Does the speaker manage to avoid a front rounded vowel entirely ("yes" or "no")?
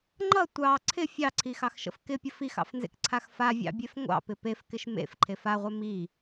yes